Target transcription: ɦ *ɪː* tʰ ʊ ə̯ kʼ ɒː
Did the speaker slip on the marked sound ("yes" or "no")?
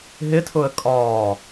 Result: yes